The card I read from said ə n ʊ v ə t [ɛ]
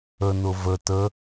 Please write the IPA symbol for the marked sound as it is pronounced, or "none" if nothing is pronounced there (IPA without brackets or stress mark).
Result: ə